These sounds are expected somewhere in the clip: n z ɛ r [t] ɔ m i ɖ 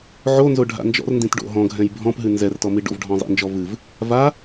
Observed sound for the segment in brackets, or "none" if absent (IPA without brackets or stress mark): t